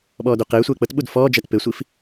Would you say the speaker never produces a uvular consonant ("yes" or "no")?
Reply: no